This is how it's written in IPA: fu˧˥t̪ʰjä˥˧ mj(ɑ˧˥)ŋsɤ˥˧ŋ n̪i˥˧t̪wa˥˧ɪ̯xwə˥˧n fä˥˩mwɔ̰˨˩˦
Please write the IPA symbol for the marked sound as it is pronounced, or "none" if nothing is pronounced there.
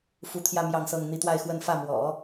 ɑ˥˧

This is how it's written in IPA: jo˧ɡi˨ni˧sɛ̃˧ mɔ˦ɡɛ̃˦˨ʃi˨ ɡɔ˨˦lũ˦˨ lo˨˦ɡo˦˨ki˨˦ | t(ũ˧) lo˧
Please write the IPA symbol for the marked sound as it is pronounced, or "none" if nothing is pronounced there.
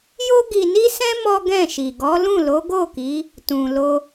ũ˨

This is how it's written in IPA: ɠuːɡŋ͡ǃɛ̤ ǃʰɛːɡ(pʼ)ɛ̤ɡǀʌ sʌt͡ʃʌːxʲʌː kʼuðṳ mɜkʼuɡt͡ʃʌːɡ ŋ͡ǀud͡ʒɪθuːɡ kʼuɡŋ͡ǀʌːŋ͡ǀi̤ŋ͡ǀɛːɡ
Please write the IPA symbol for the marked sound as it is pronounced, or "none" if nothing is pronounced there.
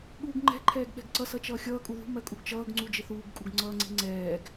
ɓ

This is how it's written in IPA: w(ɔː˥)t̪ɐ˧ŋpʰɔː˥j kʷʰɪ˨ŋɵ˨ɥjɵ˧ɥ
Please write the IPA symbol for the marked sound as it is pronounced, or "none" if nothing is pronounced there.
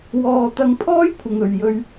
ɔː˧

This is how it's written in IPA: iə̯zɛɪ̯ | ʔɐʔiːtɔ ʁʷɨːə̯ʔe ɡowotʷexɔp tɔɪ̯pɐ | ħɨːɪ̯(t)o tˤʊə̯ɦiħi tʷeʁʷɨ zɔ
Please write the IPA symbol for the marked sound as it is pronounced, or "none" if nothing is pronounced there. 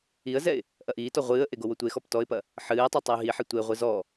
tˤ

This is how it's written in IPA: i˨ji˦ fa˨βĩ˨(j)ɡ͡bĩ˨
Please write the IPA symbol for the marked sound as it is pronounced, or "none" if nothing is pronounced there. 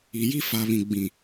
none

